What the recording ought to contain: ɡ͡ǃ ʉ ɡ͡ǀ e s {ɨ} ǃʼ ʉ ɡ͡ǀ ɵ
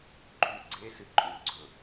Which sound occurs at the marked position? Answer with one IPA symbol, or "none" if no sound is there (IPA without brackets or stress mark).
ɨ